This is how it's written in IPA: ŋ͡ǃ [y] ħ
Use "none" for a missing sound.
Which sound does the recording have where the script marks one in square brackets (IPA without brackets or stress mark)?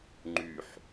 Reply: y